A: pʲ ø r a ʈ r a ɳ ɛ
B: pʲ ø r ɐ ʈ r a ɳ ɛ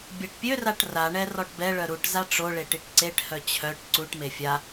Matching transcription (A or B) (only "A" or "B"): A